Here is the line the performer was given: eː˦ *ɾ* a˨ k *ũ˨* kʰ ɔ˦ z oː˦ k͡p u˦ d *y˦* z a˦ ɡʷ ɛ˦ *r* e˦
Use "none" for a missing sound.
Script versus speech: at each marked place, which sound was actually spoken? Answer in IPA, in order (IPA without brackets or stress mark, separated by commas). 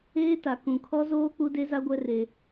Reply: t, ũ˨, e˦, r